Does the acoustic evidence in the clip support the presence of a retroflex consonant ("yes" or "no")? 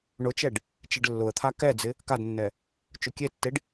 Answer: yes